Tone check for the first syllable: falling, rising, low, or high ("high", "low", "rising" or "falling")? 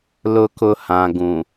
low